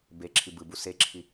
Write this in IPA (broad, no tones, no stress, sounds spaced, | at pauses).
b e ǁʰ i b ɯ b u s e ǁʰ i